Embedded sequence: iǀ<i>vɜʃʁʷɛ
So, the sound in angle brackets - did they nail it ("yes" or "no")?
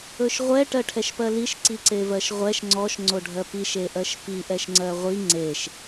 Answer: no